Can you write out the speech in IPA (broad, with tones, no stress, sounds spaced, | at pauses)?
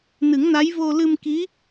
n ɨ˨˩˦ ŋ n a˧˥ j v o˧ l ɨ˧ m k i˧˥